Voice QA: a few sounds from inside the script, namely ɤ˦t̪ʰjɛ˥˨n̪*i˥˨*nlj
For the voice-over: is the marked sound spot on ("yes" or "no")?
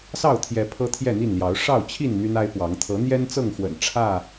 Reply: yes